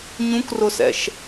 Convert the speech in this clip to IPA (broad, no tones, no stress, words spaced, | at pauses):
ɲũkrʊsɛ̰ʃ